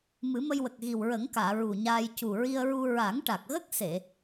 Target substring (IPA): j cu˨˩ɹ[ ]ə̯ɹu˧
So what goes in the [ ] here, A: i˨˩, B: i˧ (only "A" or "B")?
B